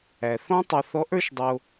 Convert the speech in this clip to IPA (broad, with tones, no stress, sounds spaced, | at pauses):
æ˩ θ ɔ̃˥ tˤ ɛ˧ θ ɔ˧˥ ʔ ə˞˧˥ ʃ dˤ o˧